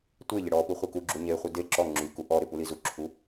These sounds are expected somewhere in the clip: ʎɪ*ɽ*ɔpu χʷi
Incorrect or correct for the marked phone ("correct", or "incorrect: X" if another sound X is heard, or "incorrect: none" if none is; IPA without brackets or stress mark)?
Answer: correct